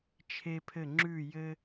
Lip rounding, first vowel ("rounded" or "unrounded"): unrounded